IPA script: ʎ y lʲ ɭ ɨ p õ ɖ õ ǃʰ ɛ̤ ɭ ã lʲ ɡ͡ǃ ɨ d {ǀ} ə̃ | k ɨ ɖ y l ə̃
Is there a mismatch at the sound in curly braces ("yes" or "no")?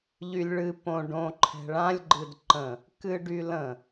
yes